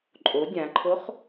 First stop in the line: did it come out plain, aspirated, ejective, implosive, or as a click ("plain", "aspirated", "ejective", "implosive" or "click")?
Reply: click